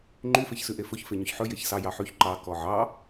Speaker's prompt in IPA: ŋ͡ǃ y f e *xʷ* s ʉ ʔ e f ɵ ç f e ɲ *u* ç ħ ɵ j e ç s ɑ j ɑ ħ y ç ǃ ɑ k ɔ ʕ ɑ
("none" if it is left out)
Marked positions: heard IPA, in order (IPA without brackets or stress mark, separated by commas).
ç, ø